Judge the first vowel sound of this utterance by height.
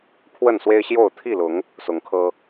mid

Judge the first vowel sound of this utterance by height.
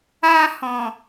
low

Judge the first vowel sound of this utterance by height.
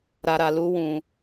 low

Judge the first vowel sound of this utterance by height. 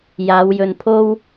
low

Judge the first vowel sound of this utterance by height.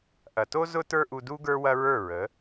low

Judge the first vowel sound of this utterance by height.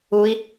high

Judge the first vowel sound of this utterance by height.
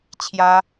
low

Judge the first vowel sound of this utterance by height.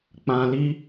low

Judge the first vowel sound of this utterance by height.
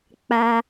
low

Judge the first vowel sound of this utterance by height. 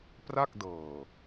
low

